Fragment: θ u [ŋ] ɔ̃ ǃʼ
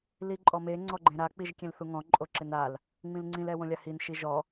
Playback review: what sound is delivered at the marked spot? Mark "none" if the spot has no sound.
ŋ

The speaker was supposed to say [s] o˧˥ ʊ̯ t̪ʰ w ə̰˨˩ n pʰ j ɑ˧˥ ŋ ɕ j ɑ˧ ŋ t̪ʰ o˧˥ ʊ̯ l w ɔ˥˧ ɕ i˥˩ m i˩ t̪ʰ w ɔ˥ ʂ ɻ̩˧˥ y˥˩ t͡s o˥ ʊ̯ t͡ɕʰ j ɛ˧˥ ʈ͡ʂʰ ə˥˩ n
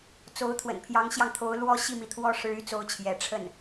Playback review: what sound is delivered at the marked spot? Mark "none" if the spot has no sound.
t͡s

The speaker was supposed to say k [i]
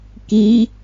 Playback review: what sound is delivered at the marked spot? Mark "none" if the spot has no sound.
i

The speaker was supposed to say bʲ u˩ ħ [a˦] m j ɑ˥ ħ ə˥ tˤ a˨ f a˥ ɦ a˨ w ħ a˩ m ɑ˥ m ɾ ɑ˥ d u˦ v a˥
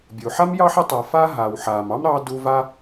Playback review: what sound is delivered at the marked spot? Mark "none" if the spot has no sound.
a˥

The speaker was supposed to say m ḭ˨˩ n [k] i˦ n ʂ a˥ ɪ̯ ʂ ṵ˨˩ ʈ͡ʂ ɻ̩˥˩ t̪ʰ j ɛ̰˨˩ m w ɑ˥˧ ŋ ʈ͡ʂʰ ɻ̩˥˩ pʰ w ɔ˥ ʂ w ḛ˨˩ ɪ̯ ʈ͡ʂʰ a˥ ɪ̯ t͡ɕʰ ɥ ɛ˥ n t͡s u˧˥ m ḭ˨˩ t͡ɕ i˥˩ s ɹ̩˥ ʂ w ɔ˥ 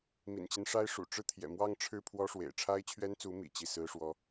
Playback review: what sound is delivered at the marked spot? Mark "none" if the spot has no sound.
t͡ɕ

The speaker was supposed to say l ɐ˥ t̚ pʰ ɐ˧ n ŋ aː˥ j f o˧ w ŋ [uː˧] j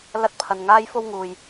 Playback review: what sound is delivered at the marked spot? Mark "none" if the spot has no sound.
uː˨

